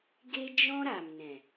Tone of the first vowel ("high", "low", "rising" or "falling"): high